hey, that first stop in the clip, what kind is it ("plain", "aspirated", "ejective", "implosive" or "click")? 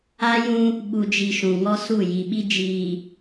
implosive